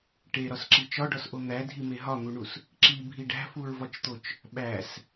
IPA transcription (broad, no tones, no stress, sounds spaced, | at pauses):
ʈ e ɾ ɒ s ǁ i t͡ʃ ɒ ɖ ɒ s ʔ o n̪ æ dʱ i m e ɦ ɒ n̪ u ɳ u s | ǁ i bʱ i ɖ æ̤ f u ɹ v ɒ t͡ʃ t̪ o t͡ʃ | ɓ æ s